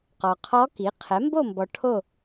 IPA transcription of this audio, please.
qɔ˨qʰɔ˧˥ki˩˥ qʰɛ˩˥mbo˥˨mbɔ˨ ʈʰo˥˨

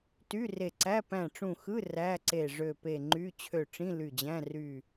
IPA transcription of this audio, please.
ty˧˥˧re˧˩ǀæ˧˥˧ pæ̃˧˩ʈ͡ʂũ˧˩xɯ˧˥˧ ræ˧˥˧ǀe˧˩ ʐø˧˩pe˧˩ŋ͡ǃy˧˥˧ t͡ɕʰø˧˩ʈ͡ʂĩ˧˥˧ ly˧˩d͡ʑæ̃˧˥˧ ry˧˩

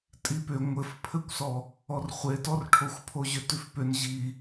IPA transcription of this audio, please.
tʼipʏ ŋʷɘfpʰɘkʷsɔ | ɔrχʷetɔrʈʰoxʷ pʰoʑʏtʉfpʏn ʑi

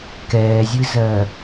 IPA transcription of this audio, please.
kɛːzʲɨzɜ

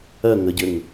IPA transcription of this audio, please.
ɜ ŋəɟɘŋ

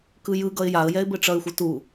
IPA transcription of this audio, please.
kɯjɯ ɡʌɪ̯jaə̯ jɛɪ̯bɘʈ͡ʂʌɪ̯ xʷɯtu

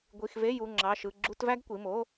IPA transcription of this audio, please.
ɡʷi˩˧˩xve˧˥˧ ju˩˧˩ŋ͡ǁɑ˩˧˩ʃɯ˩˧˩ ɡ͡ǁu˧˥˧tvæ˥ɡkʷi˩˧˩mo˧˥˧

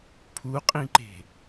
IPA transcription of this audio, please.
pʰuqʼĩǃe̤

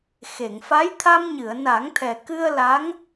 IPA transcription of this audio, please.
xe˨˩˨ŋfa˧˥j t̪ʰa˧mɲɨ˨˩˨ə̯na˨˩˦ŋt̪ʰɛ˨˩ kɨ˧ə̯ la˧˥ŋ

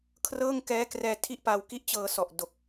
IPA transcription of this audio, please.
kʰrɤː˥˩ŋkɛː˦˥krɛː˧tʰi˥˩ʔ pa˧wki˥˩ʔt͡ɕɤː˧sɔ˨˩ʔ do˨˩k̚

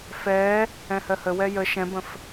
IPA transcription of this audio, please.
fɛː | ɛ̃hɜhə wɛjə ʃɛ̃bə̃f

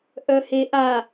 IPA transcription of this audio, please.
ʔœheʔa

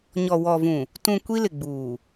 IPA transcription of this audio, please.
ɲɔ˨ wɔ˨vũ˨ | tũ˨ kʷi˦lɪ˨ɡ͡buː˨

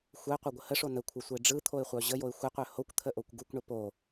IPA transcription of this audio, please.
xʷəɪ̯qʷœɡʷə həʂo nəkʷʰɯsʷəɪ̯ ɖ͡ʐɯt̪ʰoɪ̯χʷœ ʑəjoɪ̯ xʷəqʷœ hokʷt̪ʰəʔokʷ ɡukʷɳə po

